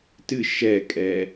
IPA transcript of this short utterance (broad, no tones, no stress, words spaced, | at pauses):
tɨ ʃɛkʼɛ